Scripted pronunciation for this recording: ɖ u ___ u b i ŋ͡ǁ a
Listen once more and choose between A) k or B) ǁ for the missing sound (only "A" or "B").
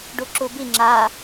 B